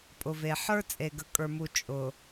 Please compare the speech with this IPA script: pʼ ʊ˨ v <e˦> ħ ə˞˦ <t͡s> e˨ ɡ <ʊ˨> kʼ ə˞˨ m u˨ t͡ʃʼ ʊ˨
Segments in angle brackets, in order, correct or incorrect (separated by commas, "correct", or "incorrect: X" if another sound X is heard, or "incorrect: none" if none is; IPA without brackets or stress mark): incorrect: e˨, incorrect: t͡sʼ, incorrect: ə˨